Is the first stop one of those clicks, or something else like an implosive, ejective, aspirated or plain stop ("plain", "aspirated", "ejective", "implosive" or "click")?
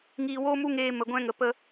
plain